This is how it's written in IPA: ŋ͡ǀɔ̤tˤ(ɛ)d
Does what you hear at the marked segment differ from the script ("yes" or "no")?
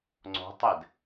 no